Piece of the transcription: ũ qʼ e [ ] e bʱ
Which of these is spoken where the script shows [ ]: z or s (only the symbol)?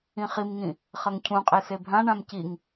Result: s